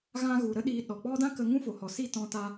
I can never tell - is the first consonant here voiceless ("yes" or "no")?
no